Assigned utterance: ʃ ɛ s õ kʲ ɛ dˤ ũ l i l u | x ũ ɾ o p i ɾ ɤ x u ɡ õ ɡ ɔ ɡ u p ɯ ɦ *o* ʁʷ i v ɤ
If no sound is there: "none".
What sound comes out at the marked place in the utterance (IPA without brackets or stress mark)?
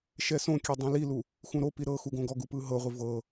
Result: ɤ